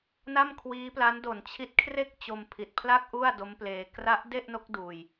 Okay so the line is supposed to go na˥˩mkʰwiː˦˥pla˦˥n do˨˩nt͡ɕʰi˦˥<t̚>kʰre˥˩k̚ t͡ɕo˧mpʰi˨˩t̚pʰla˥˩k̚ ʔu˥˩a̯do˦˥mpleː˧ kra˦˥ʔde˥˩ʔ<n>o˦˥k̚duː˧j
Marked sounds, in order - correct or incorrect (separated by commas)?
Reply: correct, correct